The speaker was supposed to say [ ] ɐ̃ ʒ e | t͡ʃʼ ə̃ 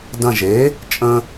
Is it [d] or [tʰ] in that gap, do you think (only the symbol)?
d